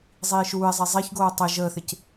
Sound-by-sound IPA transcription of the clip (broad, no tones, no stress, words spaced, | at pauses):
zˤiːʃuːɪ̯zˤi zˤiçɡoː tˤi ʒəːθɪc